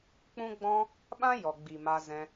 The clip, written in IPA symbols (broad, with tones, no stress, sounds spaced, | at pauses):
k͡p ũ˦ ɡ͡b ɔ̃˦ | ɓ ã˦ j ɔ˨ ɡ͡b i˨ m a˧ z ɛ̃˧